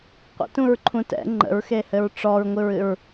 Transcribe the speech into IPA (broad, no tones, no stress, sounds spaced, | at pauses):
qʷ ə̰ t ũ ɹ ǃʰ ũ t ɛ̰ ŋ͡ǃ ə̰ ɹ x e h ɘ ɹ ʈ͡ʂ ɔ ɹ ŋʷ ɨ ɹ ɨ ɹ